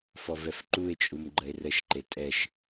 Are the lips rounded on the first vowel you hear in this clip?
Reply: yes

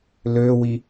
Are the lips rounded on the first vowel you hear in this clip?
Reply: yes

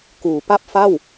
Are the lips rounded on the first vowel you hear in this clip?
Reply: yes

